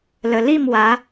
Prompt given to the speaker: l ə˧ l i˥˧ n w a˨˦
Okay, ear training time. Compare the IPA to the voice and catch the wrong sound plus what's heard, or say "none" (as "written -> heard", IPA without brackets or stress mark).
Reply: n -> m